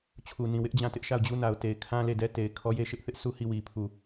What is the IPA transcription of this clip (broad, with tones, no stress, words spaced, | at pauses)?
t͡ɕʰu˨nĩ˨wɪ˦ʔ d͡ʑã˦˨tɪ˦ʔʃa˦˨ʊ̯d͡ʑu˦ na˨ʊ̯te˨ɪ̯ kʰã˦le˦˨dɛ˦ te˨ɪ̯kʰɔ˦je˦ ʃɪ˦ʔθɪ˦ʔ su˦˨ hi˦˨wi˨ pʰu˨